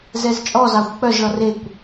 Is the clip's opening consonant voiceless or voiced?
voiced